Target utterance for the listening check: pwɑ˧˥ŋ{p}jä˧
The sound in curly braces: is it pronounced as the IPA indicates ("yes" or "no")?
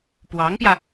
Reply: yes